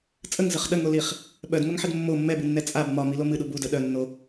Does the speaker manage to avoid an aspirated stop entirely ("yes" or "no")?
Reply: yes